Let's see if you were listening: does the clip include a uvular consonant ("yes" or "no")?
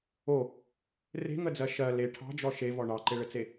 no